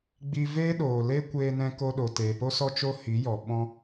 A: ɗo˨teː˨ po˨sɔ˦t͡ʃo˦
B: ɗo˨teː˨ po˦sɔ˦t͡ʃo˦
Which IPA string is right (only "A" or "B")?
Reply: B